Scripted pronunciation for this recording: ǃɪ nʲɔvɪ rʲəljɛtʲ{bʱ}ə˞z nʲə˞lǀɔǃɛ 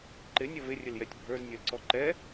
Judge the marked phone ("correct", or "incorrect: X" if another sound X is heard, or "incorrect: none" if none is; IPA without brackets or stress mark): correct